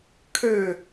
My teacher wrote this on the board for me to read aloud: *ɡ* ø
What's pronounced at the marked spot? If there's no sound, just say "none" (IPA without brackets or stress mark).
kʰ